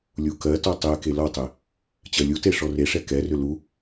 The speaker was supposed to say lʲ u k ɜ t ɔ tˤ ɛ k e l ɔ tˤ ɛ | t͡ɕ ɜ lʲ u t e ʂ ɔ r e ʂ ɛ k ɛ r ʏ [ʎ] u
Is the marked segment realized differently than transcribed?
yes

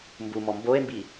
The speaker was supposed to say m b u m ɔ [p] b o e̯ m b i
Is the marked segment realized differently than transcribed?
yes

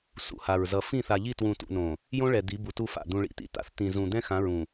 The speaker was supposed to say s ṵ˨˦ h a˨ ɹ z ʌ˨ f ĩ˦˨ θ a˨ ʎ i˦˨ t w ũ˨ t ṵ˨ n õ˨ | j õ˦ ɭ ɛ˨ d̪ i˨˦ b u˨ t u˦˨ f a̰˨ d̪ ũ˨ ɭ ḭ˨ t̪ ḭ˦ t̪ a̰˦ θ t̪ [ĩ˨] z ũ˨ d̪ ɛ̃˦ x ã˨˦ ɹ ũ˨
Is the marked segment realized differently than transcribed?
no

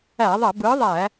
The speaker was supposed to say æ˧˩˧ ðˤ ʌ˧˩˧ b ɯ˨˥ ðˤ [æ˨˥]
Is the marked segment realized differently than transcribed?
yes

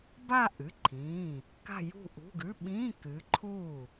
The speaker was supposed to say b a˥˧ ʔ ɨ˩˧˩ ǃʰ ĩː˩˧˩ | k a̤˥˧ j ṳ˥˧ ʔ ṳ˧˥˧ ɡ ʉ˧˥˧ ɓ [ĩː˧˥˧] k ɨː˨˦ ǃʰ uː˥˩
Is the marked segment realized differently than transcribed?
no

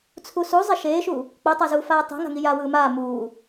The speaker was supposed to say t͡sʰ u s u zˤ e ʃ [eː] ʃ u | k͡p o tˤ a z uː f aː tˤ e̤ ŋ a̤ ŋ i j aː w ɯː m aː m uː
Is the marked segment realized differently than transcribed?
no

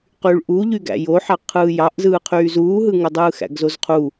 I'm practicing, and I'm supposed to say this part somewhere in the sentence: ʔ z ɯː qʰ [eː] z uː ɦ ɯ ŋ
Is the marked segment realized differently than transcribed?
yes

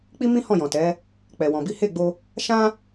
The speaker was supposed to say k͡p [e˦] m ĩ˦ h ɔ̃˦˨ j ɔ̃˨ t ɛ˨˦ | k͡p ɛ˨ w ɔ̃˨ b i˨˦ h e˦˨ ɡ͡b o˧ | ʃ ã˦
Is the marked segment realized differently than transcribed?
yes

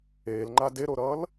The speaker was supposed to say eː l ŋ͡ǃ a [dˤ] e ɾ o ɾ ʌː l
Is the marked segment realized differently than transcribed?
yes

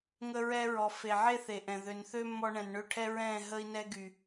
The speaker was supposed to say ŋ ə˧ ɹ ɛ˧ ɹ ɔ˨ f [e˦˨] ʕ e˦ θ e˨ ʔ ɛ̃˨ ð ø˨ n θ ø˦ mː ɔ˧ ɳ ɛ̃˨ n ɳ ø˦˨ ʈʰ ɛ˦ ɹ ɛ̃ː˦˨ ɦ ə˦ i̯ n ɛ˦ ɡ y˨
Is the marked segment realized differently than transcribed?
yes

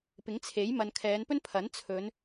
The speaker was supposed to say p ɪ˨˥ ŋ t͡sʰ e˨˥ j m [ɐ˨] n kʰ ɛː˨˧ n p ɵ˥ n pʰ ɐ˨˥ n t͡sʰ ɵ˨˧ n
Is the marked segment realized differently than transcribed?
no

